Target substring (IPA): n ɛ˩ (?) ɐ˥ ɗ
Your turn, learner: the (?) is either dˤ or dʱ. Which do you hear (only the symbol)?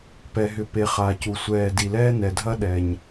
dʱ